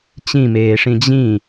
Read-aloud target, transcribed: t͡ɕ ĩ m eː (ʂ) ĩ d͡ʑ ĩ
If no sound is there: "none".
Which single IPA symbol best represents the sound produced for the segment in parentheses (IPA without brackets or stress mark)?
ʂ